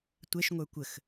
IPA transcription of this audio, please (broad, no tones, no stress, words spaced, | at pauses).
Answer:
tʷɛʃŋʷə˞ kʷəx